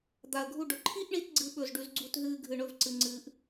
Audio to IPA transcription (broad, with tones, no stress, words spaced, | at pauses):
d̪a˨˩ə̯ɡʱu˦˨ɖɵ˨˩ ǃʰi˦˥ʔɳi˨˦t ɡ͡ǀɨ˦˥ɓɵ˦˨z ɖʉ˨˦zɡ͡ǀu˦˨tɦɨː˦˨ ɡʱɨ˨˩ɳɵ˦˨vǀɨ˨˩ ŋ͡ǀɨː˨˩ʔ